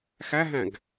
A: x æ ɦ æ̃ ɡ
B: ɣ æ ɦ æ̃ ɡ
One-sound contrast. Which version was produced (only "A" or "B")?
A